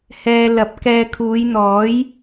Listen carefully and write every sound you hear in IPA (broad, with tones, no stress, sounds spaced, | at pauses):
h ɛː˧ l ɐ˨˥ p̚ k ɛː˧ kʰ uː˨˧ j n̪ ɔː˨˥ j